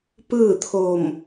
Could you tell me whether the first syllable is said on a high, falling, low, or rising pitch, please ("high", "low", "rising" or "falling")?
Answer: falling